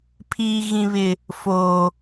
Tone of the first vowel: low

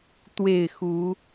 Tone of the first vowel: falling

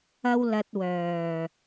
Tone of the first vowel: high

